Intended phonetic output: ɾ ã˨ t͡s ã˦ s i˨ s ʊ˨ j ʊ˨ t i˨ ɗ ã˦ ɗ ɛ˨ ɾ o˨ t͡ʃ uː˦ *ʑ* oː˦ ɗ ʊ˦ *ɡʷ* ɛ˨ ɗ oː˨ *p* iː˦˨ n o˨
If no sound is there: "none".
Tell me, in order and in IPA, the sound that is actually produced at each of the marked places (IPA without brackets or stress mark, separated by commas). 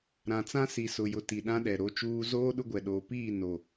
z, ɡʷ, p